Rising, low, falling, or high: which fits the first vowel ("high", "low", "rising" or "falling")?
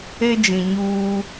high